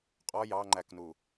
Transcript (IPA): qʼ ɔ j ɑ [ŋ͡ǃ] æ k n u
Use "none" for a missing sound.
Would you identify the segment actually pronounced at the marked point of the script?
ŋ͡ǃ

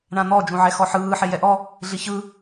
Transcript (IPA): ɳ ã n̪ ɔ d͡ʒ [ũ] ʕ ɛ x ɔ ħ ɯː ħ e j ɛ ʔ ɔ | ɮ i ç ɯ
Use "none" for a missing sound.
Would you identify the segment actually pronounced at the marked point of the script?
ũ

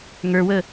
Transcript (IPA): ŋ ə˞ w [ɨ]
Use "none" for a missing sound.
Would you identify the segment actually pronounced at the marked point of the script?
ə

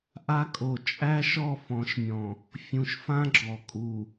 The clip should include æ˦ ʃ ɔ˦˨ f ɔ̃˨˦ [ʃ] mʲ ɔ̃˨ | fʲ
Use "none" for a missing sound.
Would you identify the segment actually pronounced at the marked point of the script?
ʃ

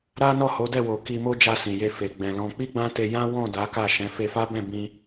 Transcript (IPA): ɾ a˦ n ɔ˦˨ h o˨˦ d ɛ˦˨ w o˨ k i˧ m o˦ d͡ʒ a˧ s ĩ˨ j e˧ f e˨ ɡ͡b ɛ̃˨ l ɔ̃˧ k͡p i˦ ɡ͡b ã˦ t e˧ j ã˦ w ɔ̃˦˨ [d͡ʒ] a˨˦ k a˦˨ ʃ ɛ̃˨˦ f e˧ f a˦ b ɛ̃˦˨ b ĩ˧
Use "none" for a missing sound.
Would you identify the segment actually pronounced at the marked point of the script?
d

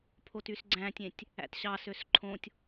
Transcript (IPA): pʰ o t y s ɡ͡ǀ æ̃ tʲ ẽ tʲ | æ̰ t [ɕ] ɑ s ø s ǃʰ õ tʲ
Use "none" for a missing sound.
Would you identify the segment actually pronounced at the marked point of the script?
ɕ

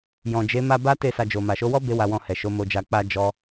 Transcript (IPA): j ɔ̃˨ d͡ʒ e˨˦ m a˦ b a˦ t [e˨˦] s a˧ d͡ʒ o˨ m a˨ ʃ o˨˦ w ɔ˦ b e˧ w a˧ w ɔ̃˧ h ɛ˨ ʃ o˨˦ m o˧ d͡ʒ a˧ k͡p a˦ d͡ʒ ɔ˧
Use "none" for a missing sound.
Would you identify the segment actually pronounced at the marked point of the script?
e˦˨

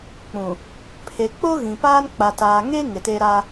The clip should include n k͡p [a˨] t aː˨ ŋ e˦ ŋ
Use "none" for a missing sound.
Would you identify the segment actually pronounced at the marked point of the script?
a˨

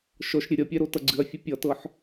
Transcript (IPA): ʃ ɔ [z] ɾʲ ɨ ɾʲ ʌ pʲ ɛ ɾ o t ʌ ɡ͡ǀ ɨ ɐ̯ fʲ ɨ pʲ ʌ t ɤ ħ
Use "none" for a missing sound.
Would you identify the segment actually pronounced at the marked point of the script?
ʃ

